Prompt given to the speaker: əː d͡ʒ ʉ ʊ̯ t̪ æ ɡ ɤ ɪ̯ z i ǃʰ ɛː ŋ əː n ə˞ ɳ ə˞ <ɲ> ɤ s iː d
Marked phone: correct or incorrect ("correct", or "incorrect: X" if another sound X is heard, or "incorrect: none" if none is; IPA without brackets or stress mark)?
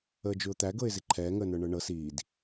incorrect: ɳ